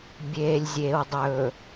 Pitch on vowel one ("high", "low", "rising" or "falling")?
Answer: low